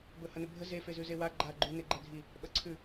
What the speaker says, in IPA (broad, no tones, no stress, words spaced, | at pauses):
bɵhɐnɵbʱə ze fezʉzewa ɡ͡ǃa ɡ͡ǃʉ neɡ͡ǃɛdʱi | ɓɐǀʰʉ